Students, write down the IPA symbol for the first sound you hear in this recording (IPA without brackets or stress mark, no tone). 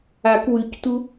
a